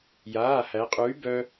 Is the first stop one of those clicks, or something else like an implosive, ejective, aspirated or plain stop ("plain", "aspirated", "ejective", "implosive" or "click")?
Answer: ejective